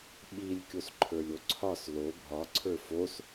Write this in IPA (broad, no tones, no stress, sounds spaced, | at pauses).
ɓ i lʲ kʲ o s ǃʰ ə˞ lʲ o ǀʰ ɒ s l o bʱ ɒ ǀʰ ə˞ f o s